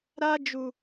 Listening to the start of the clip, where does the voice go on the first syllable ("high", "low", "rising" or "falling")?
high